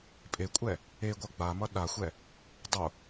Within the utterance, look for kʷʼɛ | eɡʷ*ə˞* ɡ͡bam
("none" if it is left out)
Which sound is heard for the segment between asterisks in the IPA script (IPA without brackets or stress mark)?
ʌ